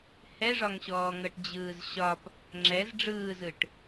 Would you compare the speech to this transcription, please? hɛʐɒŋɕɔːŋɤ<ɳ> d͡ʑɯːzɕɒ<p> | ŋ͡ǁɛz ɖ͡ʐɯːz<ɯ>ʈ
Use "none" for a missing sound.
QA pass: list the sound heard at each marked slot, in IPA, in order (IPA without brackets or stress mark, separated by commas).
ʈ, p, ɯ